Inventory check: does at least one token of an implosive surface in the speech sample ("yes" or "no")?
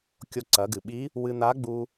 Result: yes